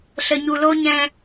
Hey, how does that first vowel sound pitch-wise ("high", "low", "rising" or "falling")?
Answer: low